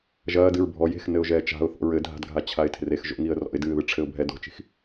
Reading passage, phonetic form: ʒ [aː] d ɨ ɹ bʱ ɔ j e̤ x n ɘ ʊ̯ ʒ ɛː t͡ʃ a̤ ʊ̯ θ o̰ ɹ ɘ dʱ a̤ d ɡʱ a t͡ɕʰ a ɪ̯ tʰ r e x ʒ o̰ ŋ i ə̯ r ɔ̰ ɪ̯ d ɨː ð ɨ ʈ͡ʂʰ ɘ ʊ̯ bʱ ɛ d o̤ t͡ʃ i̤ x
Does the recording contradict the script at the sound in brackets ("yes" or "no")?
yes